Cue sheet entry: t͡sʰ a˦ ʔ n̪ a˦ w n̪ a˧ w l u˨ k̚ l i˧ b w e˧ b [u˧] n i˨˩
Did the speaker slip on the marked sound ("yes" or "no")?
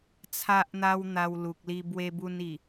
no